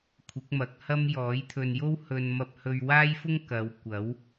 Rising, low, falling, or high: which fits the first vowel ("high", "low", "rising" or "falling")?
rising